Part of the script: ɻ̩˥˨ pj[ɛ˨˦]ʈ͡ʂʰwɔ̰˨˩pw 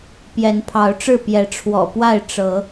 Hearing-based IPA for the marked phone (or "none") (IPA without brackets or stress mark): ɛ˨˦